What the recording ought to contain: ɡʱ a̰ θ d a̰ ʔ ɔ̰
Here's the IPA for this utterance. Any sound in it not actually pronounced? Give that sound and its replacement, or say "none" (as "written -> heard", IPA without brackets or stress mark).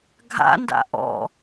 θ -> n